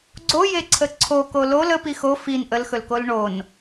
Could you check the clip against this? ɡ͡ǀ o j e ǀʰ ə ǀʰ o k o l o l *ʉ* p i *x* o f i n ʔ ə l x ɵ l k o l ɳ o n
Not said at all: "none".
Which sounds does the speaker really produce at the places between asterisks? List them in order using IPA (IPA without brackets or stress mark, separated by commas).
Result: ə, x